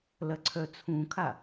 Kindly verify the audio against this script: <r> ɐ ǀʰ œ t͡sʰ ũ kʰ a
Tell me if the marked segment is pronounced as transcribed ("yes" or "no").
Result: no